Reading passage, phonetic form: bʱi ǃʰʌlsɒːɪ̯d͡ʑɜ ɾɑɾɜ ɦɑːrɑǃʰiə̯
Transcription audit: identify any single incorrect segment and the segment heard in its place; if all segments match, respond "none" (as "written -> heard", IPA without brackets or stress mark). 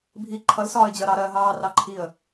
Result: none